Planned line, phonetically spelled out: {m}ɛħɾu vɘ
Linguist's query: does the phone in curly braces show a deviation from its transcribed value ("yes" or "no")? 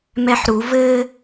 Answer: no